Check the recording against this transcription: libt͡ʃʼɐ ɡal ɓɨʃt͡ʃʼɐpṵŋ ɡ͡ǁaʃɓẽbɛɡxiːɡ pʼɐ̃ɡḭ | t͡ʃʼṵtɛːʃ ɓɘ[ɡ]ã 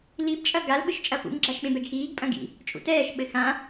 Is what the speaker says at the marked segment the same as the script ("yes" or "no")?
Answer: no